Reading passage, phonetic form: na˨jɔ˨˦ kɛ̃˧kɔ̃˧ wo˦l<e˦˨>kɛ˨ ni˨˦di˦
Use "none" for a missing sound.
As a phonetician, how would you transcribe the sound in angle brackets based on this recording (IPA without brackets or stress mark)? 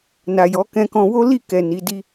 i˦˨